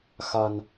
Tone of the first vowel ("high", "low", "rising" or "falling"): low